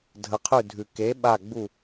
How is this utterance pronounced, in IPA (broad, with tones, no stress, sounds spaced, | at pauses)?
dʱ ə˩˥ qʰ ʉ˧˩ dʱ ʉ˩ k e˩˥ ɓ a˧˩ ɡ͡b u˧˩